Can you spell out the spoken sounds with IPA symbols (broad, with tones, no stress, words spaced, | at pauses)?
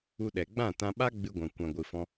u˧ɗɛ˨ ɡ͡bã˦˨tã˧ ɓa˦ɡ͡bɨ˧ɡʷã˨ kʷã˨ɡʷɨ˨fɔ̃˧